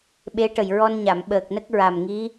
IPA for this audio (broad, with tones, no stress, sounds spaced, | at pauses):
ɓ e˧˥ ʈ ə˨˩ j ɹ ɔ˧ n ɲ a˨˩˨ m ɓ əː˨˩ k̚ n ə˦˥ k̚ ɹ a˨˩ m ŋ i˧˥